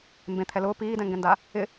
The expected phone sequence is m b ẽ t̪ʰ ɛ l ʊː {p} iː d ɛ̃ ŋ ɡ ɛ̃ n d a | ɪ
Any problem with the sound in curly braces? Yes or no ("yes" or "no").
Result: no